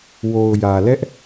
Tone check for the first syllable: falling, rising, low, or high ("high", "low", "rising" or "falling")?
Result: low